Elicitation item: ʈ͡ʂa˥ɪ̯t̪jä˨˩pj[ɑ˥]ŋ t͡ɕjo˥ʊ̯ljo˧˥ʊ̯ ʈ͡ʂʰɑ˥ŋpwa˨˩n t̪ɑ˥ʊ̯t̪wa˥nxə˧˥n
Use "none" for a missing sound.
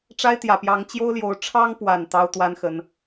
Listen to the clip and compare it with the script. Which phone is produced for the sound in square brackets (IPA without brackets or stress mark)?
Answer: ɑ˧˥